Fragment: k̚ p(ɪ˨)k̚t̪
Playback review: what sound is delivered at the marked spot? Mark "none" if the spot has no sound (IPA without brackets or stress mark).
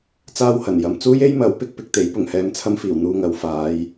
ɪ˧